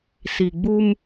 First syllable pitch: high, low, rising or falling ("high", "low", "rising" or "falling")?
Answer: low